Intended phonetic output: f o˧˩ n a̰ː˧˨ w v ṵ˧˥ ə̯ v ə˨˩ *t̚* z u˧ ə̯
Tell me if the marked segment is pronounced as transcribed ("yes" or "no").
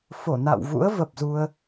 no